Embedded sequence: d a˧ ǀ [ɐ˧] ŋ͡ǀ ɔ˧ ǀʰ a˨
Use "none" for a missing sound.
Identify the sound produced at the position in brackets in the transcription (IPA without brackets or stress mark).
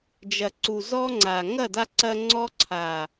ɐ˧